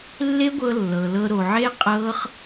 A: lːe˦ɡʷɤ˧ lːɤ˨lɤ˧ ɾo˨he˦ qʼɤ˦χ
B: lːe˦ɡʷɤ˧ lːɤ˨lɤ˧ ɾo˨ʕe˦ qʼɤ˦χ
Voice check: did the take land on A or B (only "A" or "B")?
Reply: B